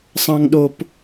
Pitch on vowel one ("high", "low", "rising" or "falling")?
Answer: high